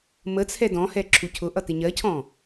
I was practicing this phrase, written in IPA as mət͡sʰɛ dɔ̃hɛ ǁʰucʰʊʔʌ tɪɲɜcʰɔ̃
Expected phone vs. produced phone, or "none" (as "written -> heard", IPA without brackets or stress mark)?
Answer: none